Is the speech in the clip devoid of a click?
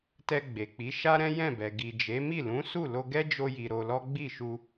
yes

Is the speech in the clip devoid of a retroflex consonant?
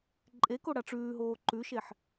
no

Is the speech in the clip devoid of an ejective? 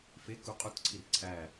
no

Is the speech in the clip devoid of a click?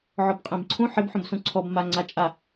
no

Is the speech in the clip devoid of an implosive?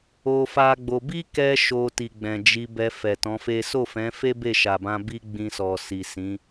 yes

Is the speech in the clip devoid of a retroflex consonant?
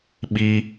yes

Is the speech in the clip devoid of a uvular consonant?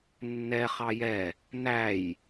no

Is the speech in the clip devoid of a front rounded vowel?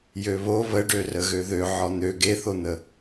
no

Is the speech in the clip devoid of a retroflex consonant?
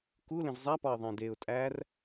yes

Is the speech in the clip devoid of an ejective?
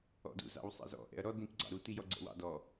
yes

